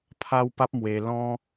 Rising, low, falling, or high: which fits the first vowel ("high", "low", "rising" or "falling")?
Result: high